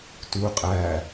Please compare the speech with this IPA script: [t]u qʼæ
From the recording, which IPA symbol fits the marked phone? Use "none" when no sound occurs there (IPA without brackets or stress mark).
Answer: t